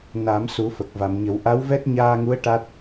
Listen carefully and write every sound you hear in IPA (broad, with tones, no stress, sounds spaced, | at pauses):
n a˨˩˦ m s u˨˩˦ f ə˨˩ k̚ v a˨˩˨ m ɲ ə˨˩˦ w ʔ a˧˥ w v ɛ˦˥ t̚ ɲ aː˧ ŋ u˧˥ ə̯ ʈ a˦˥ t̚